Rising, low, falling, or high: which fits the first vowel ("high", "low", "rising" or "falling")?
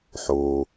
low